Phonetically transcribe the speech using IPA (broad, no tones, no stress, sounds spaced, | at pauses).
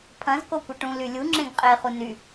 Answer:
pʰ ɐ̃ z k o kʷ ɐ ʈ ũ l y lʲ u ŋ͡ǁ ẽ ɡ qʼ e χ u n y